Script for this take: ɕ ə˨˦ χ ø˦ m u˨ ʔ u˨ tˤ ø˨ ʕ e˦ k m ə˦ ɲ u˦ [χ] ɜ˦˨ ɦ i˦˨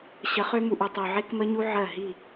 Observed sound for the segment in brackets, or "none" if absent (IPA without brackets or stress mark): ʕ